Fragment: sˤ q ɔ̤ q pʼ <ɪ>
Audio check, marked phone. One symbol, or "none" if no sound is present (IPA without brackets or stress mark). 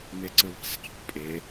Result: ɪ